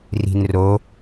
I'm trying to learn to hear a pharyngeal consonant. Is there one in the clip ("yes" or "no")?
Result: no